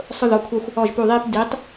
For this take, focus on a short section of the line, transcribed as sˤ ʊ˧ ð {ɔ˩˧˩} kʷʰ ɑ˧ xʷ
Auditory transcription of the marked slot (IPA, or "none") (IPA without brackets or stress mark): ɔ˩˧˩